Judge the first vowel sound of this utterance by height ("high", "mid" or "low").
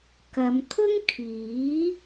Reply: low